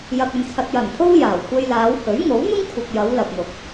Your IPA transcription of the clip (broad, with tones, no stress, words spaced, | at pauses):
jɐ˧k̚ɵ˧nt͡sʰɐ˧t̚ jɐ˨˩n pʰo˥w jaː˨˩w kʷe˧jlaː˨˧whɵ˨˥ɥ ŋo˨˥wn̪ʊ˥ŋ kʷʰɐ˨k̚jɐ˨˧w lɐ˨p̚n̪ʊ˨˥k̚